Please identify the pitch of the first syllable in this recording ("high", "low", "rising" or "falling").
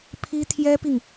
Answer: high